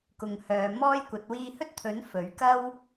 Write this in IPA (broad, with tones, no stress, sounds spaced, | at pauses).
k ʊ˨ ŋ h œː˨ m ɔː˥ j kʷ ɐ˨˥ t̚ w iː˧ h ɵ˥ t̚ t̪ʰ ɵ˨˥ n f ɵ˨˥ ɥ k ɐ˥ w